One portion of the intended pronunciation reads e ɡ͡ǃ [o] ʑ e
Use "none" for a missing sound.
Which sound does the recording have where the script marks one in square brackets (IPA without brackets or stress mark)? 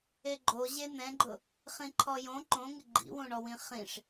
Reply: o